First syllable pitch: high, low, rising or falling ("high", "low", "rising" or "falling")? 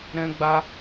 high